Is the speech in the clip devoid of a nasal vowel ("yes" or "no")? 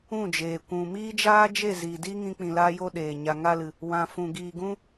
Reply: no